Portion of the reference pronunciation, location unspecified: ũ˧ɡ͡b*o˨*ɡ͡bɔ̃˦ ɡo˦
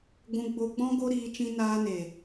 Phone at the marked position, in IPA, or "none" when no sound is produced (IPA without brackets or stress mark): o˧